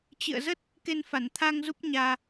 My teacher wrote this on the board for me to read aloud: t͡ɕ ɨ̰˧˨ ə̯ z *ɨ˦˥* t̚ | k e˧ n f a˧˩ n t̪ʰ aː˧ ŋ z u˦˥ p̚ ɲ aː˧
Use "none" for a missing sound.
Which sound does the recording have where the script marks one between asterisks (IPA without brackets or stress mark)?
ə˦˥